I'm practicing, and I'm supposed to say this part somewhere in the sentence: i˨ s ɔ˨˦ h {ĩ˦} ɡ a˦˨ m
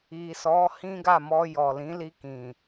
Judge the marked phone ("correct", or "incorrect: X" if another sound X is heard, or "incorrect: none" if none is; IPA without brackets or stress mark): correct